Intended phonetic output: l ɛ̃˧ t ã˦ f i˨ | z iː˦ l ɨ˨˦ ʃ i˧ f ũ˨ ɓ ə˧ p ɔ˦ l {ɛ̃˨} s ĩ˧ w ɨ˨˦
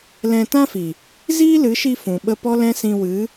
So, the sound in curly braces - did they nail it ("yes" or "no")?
no